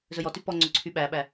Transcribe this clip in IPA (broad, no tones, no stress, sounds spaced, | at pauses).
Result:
z ɵ j ɔ t y p ɔ ŋ͡ǀ ɵ ǀʰ y ɓ æ ɓ æ